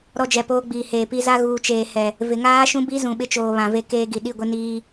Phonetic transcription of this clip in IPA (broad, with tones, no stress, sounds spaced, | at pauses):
ɾ ɔ˦ d͡ʒ ɛ˨ p oː˦ ɡ͡b iː˨ h eː˨ p i˦ z a˦ ɣ uː˨ t͡ʃ eː˨ h ɛ˨ | v ɪ˨ ŋ aː˦ ʃ ũ˦ b i˦ z ũ˨ ɓ ɪ˦ t͡ʃ oː˨ β ã˨ v e˦ k eː˦ ɡ i˨ ɗ i˦˨ ɡʷ ɪ˦ n iː˦